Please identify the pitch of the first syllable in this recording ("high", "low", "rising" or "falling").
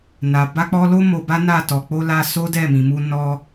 low